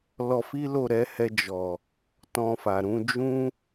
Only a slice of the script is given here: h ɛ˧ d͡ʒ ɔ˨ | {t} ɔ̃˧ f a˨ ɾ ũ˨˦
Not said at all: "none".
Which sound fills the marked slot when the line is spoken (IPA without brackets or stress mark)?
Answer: t